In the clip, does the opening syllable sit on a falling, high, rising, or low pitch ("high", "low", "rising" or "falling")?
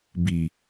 low